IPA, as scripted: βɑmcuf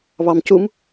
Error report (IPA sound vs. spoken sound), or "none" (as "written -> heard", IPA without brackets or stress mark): f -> m